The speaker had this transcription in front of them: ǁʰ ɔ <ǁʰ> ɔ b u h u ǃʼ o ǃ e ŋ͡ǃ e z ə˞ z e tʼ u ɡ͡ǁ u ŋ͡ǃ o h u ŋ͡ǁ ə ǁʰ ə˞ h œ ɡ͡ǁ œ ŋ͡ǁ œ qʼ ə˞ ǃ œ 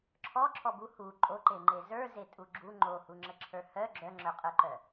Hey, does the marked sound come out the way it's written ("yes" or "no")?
yes